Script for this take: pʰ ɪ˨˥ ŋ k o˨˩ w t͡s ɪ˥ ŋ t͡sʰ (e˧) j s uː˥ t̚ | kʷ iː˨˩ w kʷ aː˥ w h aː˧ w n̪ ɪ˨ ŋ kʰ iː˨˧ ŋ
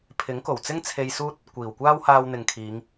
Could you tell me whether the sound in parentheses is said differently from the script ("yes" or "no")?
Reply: no